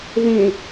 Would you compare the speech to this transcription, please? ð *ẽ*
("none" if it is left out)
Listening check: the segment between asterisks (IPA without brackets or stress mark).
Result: ẽ